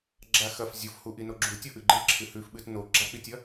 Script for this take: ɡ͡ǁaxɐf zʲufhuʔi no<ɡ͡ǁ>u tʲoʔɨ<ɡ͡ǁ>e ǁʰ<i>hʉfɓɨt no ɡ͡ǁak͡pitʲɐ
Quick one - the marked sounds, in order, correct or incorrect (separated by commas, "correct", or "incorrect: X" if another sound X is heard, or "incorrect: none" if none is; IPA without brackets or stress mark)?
correct, incorrect: ɡ͡ǃ, incorrect: ɨ